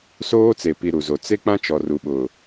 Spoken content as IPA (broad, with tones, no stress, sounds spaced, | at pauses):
s oː˦ t͡s e˨ p i˨ ɾ u˨ z o˨ t͡s e˦ k͡p ã˦ t͡ʃ ɔ˨ r u˨ ɓ ʊ˨